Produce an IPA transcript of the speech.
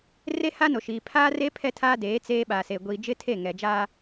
r e˦ h a˦ n o˨ ʃ iː˨ pʰ aː˦ r e˦ pʰ ɛ˦ tʰ aː˦ d eː˨˦ t͡s eː˦ ɓ aː˨ s e˨ ɡʷ iː˨ d͡ʒ ɪ˦ tʰ e˦˨ ŋ ɛ˨ d͡ʒ aː˦

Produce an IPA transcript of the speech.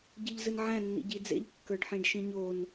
ɟ ɨ ʎ z ɨ n ʕ æ̃ nː ḭ ɟ i d͡z ḛ ʎ kː ə˞ ɖ ħ ĩ ɖ ʃ ĩ ɲ o n

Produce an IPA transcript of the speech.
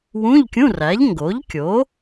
w ũ˧˥˧ ʎ kʲ ũ˧˥˧ r æ˩˥ ʎ ŋ ɡ o˩˥ ʎ kʲ o˩˥

